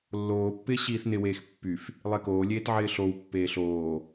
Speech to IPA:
lːoːpːɪː ɕiːθnɪweːx pːyf | lˠekoːlʲeːt ʕɪːɬowpːeː ɬoː

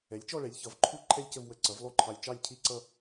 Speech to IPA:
ɛ˩˥lʲt͡ʃɔ˥˧ɭɛ˩˥lʲ çʌ˩˥vǃʰu˥˧ ǃʰɛ˥˧lʲcə˥˧v wə˧ ǀʌ˩˥vlˠu˥˧ǃʰɑ˧lʲ t͡ʃɑ˥˧lʲcʰi˥˧ǀʌ˥˧

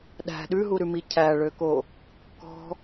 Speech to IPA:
ɗæ̤ ɗʉɦuɾʉmi cʰæɭøko | kɔ̤

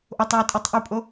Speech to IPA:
ʔotˤ wutʼitˤʔupʼo

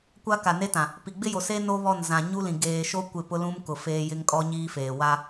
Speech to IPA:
kʷa˦ka˨ne˦tã˨ | pi˨ ɡ͡bɪ˦jo˨seː˦ no˦βɔ˦˨n zã˨ ɲu˦lĩ˨ ɡeː˨ʃo˦ kʷɪ˦˨pʊ˦lũ˦m kʊ˨feː˦ jɪ˦ŋkʼɔ˦ɲiː˦feː˨ wa˦

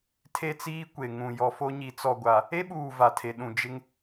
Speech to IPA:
tʰe˦t͡siː˦ kʷe˨ŋũ˨ jɔ˨fo˦ɲi˨˦ t͡sɔ˨ɡʷa˨ | e˦ɓuː˨ va˨tʰe˨ɗũ˨ d͡ʒɪ˦ŋ

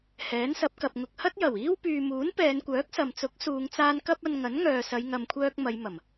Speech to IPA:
hɛː˨˥nsɐ˨˥p̚kɐ˨p̚ ŋʊ˨k̚hɐ˥t̚jɐ˨˩wiː˥w pyː˨muː˨˥n pɛː˨˧nkʷœː˨˥k̚sɐ˨m t͡sʊ˨˥k̚suː˨˧ŋt͡saː˧n kɐ˥p̚ɐ˧n ŋɐ˨˥nŋœː˨sɐ˨˧j ŋɐ˨mkʷʰœː˧k̚ mɐ˨˧j mɐ˨˩m

